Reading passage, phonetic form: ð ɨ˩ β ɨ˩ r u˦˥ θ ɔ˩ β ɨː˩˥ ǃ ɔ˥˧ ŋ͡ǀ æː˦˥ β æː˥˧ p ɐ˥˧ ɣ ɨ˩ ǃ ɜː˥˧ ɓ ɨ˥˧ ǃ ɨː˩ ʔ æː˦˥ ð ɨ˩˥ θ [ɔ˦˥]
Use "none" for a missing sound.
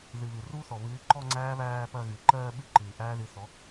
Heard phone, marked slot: ɔ˩˥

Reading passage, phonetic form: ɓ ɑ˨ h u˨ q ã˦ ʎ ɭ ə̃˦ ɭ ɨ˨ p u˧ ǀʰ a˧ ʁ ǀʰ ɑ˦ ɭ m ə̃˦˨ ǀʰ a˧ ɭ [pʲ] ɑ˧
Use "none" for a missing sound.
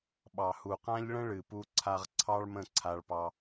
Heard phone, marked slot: p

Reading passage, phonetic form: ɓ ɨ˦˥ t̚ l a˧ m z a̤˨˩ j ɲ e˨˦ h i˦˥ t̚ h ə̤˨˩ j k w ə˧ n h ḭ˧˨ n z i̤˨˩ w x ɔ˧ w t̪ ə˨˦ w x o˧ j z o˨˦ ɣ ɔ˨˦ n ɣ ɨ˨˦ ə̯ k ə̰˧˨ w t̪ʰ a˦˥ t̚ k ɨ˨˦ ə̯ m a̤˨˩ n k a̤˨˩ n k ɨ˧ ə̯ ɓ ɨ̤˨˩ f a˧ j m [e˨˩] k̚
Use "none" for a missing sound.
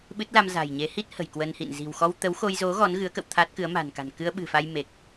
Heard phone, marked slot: e˨˩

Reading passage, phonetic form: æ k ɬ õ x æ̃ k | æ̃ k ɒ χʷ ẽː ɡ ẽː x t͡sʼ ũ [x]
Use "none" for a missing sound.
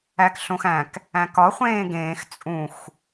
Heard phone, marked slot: x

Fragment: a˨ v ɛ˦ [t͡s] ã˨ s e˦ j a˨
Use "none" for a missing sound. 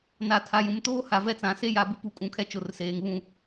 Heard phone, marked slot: t͡s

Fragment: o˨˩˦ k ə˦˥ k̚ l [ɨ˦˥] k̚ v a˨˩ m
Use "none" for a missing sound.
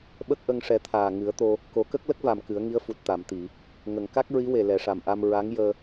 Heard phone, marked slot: ə˦˥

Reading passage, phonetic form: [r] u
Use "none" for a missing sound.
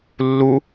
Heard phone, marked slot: lː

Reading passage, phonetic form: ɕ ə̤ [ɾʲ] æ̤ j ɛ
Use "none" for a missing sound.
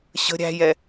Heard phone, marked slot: ɾʲ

